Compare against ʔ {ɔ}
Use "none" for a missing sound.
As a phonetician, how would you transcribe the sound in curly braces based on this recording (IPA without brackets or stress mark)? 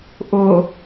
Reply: ʊ